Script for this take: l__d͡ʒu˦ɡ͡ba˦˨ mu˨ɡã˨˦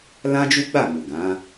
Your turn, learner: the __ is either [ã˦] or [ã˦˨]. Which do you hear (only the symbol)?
ã˦